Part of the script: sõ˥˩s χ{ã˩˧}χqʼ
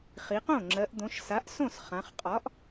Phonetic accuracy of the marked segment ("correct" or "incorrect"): correct